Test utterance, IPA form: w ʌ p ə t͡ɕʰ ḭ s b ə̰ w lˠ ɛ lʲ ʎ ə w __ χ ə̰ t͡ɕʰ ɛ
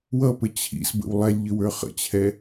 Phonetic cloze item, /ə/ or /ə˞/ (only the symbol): ə˞